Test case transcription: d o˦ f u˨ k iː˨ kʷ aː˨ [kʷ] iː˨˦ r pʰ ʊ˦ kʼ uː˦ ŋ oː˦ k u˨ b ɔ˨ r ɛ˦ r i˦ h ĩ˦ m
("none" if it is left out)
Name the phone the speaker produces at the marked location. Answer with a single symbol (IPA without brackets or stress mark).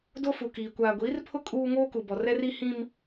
ɡʷ